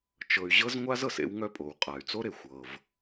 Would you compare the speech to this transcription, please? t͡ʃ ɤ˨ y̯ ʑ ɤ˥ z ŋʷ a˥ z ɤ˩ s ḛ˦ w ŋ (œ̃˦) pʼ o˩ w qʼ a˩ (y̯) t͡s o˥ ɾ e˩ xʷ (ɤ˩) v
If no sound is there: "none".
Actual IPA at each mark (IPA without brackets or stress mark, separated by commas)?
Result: œ˦, y̯, ɤ˩